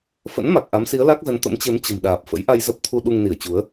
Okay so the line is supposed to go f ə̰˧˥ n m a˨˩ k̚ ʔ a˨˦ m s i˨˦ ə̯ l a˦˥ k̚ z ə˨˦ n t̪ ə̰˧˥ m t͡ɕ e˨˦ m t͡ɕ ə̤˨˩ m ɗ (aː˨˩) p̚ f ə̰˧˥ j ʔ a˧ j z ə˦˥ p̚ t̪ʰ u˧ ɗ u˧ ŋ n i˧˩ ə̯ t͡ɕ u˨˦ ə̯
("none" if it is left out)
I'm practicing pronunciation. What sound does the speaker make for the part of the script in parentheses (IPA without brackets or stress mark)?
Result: aː˨˩